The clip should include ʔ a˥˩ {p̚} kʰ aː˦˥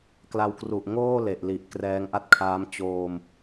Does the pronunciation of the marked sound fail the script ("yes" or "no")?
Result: yes